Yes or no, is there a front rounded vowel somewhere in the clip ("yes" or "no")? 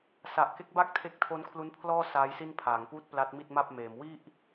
no